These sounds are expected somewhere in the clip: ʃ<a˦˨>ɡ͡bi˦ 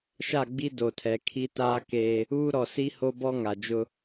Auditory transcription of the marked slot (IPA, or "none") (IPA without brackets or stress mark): a˦˨